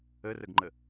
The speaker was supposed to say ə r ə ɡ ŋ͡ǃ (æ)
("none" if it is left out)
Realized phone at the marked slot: ə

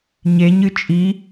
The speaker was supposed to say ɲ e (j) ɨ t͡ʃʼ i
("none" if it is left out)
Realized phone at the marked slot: ɲ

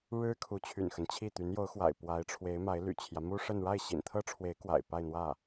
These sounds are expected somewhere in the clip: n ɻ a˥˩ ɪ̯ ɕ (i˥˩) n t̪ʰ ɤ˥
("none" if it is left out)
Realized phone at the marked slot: ḭ˨˩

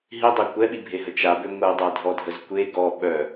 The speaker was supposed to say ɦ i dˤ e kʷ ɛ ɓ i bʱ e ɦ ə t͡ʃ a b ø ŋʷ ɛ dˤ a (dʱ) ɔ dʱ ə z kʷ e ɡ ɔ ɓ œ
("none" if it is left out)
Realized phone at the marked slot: dʱ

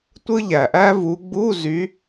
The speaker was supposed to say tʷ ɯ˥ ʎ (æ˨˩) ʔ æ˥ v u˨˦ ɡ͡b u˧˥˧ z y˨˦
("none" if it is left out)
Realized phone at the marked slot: æ˨˩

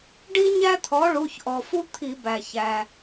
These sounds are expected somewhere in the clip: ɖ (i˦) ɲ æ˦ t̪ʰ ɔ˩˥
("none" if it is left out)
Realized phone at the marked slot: i˦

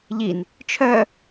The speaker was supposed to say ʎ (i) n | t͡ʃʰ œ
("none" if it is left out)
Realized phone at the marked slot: i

